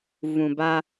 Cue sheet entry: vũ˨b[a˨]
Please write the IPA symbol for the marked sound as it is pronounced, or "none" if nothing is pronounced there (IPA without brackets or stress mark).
a˦